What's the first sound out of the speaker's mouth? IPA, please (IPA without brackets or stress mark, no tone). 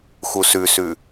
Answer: x